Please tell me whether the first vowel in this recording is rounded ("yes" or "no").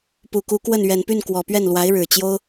yes